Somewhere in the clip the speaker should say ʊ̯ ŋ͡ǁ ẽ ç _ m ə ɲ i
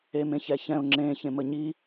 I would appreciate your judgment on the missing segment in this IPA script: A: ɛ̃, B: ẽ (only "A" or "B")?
B